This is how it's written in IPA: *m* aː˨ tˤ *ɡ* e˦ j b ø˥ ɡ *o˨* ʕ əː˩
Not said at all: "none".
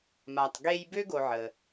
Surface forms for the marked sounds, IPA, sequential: m, ɡ, o˨

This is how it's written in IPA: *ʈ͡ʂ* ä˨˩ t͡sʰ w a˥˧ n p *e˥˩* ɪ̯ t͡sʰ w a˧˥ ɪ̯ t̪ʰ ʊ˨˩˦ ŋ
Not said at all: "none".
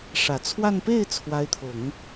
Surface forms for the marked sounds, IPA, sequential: ʂ, e˥˩

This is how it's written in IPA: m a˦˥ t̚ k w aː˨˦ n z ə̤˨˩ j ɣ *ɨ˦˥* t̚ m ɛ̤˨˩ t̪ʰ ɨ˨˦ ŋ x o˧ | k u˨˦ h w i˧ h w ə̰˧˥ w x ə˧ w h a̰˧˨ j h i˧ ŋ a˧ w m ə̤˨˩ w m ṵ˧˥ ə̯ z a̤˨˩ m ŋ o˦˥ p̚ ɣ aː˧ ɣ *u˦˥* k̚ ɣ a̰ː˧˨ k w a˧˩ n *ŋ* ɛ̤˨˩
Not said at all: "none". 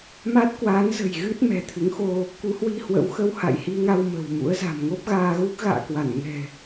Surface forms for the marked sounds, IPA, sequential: ɨ˦˥, u˦˥, ŋ

